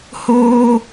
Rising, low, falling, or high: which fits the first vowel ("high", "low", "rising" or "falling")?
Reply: high